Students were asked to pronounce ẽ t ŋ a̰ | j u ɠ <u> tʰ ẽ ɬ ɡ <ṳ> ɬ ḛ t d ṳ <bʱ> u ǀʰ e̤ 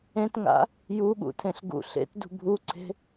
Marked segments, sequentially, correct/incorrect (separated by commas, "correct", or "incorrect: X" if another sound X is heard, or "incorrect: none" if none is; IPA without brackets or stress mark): incorrect: ṵ, incorrect: ṵ, correct